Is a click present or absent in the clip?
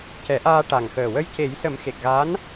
absent